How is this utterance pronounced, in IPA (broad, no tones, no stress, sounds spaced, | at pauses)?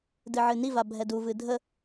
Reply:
d ɨ ʕ ɨ n i v a bʱ ɛ d u v ɨ dʱ ə